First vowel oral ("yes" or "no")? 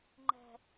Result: yes